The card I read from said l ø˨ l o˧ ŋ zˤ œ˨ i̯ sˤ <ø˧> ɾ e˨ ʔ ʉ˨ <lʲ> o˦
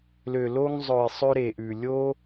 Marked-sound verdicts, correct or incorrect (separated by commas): correct, correct